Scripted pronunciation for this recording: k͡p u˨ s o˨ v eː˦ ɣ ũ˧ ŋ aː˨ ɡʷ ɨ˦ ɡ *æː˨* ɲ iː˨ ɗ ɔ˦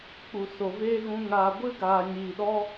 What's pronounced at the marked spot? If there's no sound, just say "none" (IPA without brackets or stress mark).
aː˨